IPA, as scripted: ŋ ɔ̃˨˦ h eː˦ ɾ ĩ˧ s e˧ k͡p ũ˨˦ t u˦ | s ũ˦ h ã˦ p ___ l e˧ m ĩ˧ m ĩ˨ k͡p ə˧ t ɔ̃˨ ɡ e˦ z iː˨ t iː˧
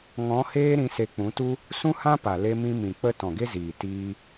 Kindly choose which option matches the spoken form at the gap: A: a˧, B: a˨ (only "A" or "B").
B